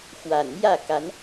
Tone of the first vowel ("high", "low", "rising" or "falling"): low